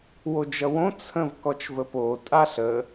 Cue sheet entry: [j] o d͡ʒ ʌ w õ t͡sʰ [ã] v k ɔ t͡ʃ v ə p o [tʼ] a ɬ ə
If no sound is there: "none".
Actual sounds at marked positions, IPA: w, ə̃, tʼ

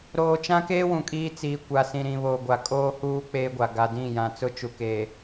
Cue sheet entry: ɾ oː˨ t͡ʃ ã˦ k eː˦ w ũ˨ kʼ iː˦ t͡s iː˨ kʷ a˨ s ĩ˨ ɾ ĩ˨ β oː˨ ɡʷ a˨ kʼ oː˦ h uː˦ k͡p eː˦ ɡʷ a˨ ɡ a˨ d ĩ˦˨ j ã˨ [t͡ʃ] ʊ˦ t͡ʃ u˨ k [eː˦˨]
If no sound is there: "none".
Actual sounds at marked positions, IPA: t͡s, eː˨

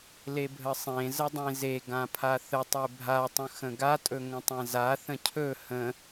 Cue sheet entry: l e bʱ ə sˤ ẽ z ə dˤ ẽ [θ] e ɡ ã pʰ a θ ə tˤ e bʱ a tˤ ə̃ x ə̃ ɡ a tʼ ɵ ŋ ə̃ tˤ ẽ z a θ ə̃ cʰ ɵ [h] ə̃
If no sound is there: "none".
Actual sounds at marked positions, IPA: z, h

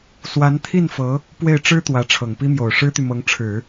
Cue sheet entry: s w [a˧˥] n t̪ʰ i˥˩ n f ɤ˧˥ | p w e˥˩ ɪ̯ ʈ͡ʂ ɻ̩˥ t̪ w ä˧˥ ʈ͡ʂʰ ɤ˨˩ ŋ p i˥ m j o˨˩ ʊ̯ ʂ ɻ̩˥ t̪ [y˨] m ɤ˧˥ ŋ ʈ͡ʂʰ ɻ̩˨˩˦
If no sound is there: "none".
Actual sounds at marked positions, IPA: a˧˥, y˨

